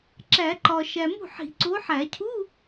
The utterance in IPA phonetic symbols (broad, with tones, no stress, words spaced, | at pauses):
ǁæ˨˩˦ǃɒ˨ ʃæ˨mṳ˥˩ħi̤˨˩˦ ǀo˨˦ħæ˨˩˦cʰu˧˥˧